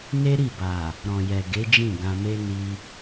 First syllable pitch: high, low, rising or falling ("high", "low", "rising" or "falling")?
high